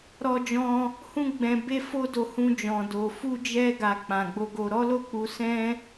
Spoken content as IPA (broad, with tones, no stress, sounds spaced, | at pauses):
ɾ ɔ˧ d͡ʒ ɔ̃˧ | h ũ˦ ɡ͡b ɛ̃˧ b e˦ f o˦ d o˧ h ũ˧ d͡ʒ ɔ̃˨ d o˨ f u˧ d͡ʒ ɛ˧ ɡ a˨ k͡p ã˨ ɡ͡b o˧ ɡ o˧ ɾ ɔ˦ l o˦˨ k͡p u˨˦ s ɛ̃˦